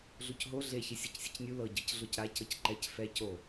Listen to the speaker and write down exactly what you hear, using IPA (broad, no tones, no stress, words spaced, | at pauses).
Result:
ɮucɦo ɮeçi sʲɤcsʲɤcnʲu lɤɟɤc ɮocɾa cɤcǃɛc fɛ co